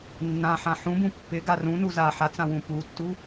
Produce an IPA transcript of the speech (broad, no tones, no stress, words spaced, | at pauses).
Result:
nːã ħãħũbũ pːɪɡa rũnu za ħat͡sã wũputːu